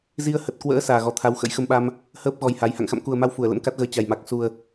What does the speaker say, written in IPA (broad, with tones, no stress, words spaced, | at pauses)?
zi˧ə̯hə˨˩t̚kwə̰ː˧˥ saː˨˩ɣɔ˨˩t̪ʰa˨˦w xə̰˧˥jxə˧mɓa˧m | həː˦˥p̚ɣɔ˨˩j ha˨˦j ha̰˧˨ŋxa̰˧˨mku˨˩ə̯ma˧w fu˧˩ə̯lə̰˧˥mka˦˥t̚ɣəː˨˦ t͡ɕa˨˩jma˨˩k̚ su˨˩ə̯